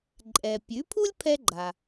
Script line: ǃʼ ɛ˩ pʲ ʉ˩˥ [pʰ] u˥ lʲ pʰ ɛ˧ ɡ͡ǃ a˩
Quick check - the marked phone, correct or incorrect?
correct